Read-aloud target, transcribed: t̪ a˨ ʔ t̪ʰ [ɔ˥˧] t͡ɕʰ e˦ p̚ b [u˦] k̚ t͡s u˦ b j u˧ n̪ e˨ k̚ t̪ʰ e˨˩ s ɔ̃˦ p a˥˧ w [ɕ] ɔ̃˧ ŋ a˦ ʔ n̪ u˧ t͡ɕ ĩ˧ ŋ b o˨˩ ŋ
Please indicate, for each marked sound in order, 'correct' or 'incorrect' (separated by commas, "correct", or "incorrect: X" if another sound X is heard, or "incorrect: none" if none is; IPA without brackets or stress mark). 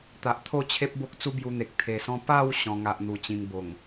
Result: incorrect: o˥˧, incorrect: o˦, correct